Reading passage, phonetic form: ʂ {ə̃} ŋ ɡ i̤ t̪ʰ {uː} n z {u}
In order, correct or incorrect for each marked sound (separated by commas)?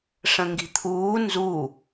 correct, correct, correct